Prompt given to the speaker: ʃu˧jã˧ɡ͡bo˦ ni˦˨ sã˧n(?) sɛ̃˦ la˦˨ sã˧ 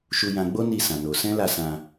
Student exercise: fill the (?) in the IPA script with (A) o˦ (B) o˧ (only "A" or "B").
B